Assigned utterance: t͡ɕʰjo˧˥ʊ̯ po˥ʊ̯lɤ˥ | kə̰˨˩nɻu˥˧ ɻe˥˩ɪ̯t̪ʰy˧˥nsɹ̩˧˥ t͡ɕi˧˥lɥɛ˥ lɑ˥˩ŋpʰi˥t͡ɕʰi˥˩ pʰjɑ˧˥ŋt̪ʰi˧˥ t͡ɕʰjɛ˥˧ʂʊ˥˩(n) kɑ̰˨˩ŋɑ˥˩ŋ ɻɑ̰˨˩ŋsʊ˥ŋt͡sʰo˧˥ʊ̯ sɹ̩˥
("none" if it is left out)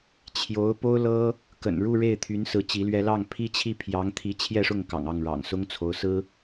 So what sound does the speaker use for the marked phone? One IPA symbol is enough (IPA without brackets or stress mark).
ŋ